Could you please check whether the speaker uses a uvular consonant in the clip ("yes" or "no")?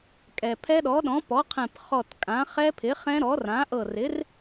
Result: yes